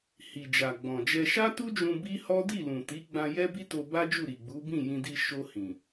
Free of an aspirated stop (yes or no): yes